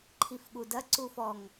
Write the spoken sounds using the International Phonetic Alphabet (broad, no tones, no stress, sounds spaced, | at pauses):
ǃʰ i f ɠ u d ɐ ǀ u f ɔ ŋ